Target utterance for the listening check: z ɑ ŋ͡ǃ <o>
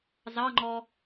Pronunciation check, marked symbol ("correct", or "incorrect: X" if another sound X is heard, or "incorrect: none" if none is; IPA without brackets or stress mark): incorrect: ɔ